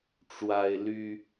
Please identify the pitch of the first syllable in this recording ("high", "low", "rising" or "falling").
high